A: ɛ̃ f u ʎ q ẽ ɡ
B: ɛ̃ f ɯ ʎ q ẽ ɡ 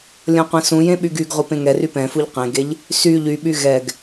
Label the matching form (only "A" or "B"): A